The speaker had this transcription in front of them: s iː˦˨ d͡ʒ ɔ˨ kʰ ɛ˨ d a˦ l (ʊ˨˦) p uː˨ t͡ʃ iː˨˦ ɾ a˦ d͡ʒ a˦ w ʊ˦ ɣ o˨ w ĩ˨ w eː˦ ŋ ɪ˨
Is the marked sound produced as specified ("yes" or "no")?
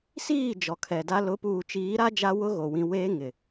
yes